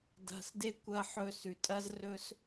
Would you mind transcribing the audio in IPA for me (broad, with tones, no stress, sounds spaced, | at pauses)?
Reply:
d a̤˨ s d e˧ kʷ ɐ˧ ħ ɵ˧ s ʉ˨ tʼ ɐ˦ z r ɵ˦ s